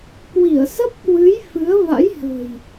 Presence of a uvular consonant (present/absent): absent